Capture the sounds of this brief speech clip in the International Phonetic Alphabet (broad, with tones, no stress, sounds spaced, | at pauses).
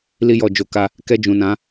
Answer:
l i˧ j ɔ˨ d͡ʒ o˧ k a˦ | k ɛ˧ d͡ʒ ũ˨ n ã˨˦